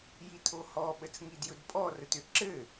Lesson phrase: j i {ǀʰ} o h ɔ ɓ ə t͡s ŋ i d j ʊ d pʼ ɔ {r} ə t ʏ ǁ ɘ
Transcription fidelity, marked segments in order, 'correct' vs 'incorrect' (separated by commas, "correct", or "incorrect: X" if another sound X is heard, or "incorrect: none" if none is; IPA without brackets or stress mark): incorrect: tʰ, correct